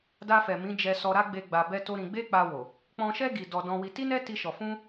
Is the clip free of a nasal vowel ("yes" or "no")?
no